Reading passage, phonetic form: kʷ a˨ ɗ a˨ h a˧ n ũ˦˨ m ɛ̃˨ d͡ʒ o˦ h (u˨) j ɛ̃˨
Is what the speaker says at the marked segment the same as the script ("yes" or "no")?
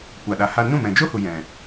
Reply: yes